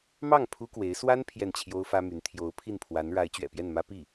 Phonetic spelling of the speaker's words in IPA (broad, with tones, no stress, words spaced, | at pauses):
mɑ˥˩ŋ pʰu˥kwe˧˥ɪ̯ swa˥n pʰjɛ˥˩nt͡ɕʰjo˥ʊ̯fä˥my˧˥n t̪ʰjo˧˥ʊ̯pʰi˥˩npʰwa˧˥n ɻa˧˥ɪ̯t͡ɕɥɛ̰˨˩pjɛ˥˩nmä˥ pi˥˩